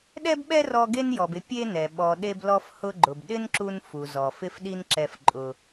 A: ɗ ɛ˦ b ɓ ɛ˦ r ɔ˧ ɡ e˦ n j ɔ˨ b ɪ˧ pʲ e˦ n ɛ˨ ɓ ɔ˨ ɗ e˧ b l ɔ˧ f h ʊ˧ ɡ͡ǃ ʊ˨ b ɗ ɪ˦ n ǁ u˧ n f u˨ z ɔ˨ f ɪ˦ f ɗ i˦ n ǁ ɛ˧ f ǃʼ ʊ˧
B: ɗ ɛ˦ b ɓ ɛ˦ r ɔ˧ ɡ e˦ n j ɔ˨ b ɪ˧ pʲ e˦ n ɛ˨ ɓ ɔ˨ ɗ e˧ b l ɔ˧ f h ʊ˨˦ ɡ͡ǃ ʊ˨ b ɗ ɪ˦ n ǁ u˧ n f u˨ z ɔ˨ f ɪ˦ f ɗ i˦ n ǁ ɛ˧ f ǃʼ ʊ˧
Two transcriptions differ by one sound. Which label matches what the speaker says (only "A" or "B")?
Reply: A